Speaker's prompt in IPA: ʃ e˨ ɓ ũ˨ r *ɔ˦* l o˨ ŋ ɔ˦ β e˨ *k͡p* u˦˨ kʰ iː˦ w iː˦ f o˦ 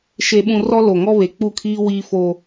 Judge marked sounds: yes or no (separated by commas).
yes, yes